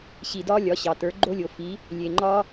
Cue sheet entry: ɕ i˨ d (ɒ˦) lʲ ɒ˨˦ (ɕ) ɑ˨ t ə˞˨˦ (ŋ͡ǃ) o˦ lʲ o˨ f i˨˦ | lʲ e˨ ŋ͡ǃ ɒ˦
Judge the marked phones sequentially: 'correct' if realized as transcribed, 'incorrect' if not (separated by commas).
correct, correct, incorrect